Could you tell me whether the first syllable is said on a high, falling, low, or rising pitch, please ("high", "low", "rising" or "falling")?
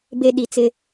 low